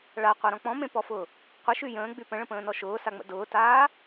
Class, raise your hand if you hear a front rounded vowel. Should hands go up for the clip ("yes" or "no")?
yes